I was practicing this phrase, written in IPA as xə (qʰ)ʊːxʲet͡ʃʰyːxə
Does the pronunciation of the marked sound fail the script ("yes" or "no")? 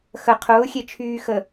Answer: no